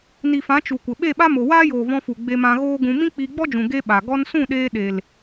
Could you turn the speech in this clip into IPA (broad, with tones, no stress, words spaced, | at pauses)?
ni˨fã˨˦ t͡ʃu˨kʷə˨ ɓe˦˨ɓa˦mo˨ waː˦joː˨vɔ̃˧fu˨ ɡ͡be˧mã˧ ɣoː˦ɡũ˧ mĩ˦k͡piː˧ɡ͡bɔ˦d͡ʒũ˨ ɡe˦ɓa˨ ɡɔ˧nsũ˦˨ɗeː˧ ɗe˨l